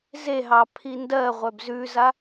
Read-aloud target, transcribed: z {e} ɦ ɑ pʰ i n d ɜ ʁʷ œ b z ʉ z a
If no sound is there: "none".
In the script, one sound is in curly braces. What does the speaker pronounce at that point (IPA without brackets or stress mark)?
e